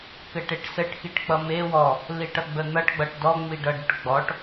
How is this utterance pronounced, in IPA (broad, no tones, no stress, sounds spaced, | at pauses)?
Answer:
k ɘ ʈ e ʈ s ɘ ʈ x i ʈ k͡p ʌ m e w ɔ | l i ʈ ʌ ɡ͡b ə n̪ ʌ ʈ ɡ͡b ʌ ʈ d ɔ ŋ͡m i ɖ ʌ ɖ ʊ ʈ ɡ͡b ɔ ʈ